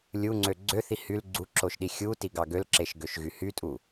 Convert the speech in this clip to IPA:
lʲuŋ͡ǀø ɡ͡ǀøθi hyl ɡ͡ǀuǁoʃɗi xʲutiɡɑ ɡølǁeʃɡøʃɣy hytʼu

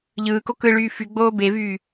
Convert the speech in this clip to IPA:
ʎɯːko kɯɭyː fyɡ͡boː bevyː

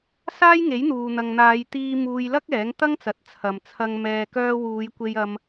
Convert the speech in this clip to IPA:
saː˥jŋe˨˥jn̪uː˨ n̪ɐ˨ŋn̪aː˨˧jt̪iː˧ muː˧jlɐ˥k̚ ɛː˨˥ŋt̪ɐ˥ŋt͡sɐ˨˥t̚ t͡sʰɐ˨mt͡sʰɐ˧ŋ mɛː˨kœː˧ wuː˨˧jkʷe˧jɐ˧m

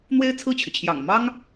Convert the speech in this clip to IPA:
n̪we˥ɪ̯t͡sʰɹ̩˥˩t͡ɕʰy˩t͡ɕʰjɑ̰˨˩ŋ mɑ˥ŋ

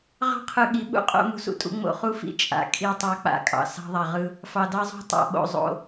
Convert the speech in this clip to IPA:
ʁɑ̤˦qʰɯ˨ ɠi˨˦ɓṵ˦ qʼo̰˨˦ mṳ˨sṵ˨tʼṵ˨˦ ŋ͡mo̰˨χu˦fḭ˨ t͡ʃʼa̰˨ kʼi˦˨tˤɑ˦ k͡pa̰˦˨kʼɑ̰˨ sɑ̤˦ðˤa˨ʁɯ˦ | fɑ˨dɑ˦zˤo̤˦ tˤa̰˨ɓo̰˨ zˤo̰˦

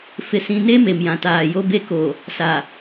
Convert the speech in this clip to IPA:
fɪ˨sĩ˨ne˦ me˨mjã˨taː˨jo˦ be˦ko˨ | sa˨

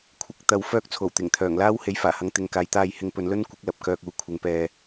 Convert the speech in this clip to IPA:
kʷʰɪ˨˥k̚t̪ɐ˨w fœː˧k̚ t͡sʰo˨˩wt̪ɪ˨˩ŋt̪ʰœː˨˩ŋlaː˥w he˨˥jfaː˨˩hɐ˨˧ŋ t̪ɪ˨ŋkaː˨jt̪aː˧jhɪ˧ŋ pɵ˨˧nlɵ˥nkʷɪ˨˥k̚lɐ˨p̚ kœː˧k̚uː˨˥kʷʰɪ˨˧ŋ pɛː˧

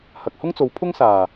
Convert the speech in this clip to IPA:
hɐ˨k̚hʊ˥ŋt͡so˨˧w pʰʊ˥ŋsaː˨˩

